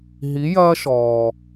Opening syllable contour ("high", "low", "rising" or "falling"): rising